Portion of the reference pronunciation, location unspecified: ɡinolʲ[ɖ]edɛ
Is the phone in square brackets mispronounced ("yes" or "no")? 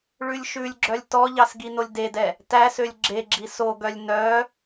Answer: yes